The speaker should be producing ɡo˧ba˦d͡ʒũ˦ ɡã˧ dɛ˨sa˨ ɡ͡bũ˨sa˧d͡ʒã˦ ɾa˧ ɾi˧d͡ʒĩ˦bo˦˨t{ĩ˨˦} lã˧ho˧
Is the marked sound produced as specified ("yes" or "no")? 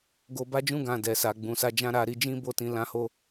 yes